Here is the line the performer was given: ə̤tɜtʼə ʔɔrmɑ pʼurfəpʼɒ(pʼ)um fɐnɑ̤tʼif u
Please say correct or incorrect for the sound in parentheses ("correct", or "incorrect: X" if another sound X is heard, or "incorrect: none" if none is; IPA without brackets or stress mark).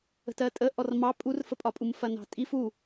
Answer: correct